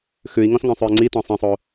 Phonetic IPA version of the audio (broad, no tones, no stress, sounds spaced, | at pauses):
x ʉ i̯ ŋ ɔ̃ s ŋ œ̃ sˤ ʉ i̯ ŋ͡ǀ i t ɔ̃ sˤ ĩ sˤ o